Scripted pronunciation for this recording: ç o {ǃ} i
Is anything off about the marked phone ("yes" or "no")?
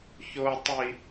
yes